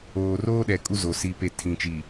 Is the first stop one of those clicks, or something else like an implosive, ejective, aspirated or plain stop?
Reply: implosive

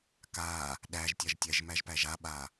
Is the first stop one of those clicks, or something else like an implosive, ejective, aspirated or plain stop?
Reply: plain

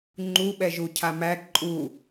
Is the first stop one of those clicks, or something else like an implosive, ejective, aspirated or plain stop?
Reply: click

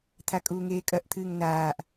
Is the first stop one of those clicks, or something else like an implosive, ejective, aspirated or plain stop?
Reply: aspirated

